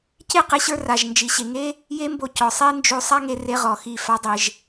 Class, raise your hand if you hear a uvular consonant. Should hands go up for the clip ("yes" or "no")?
yes